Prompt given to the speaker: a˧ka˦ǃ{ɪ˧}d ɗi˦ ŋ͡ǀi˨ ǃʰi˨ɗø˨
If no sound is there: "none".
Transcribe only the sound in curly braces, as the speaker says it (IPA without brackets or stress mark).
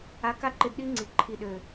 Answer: ɪ˧